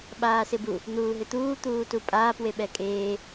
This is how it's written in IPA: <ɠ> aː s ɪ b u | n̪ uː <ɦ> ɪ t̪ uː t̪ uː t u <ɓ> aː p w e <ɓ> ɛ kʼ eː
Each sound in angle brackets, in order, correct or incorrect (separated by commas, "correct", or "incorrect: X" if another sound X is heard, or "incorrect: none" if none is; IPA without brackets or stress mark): incorrect: ɓ, correct, incorrect: pʼ, correct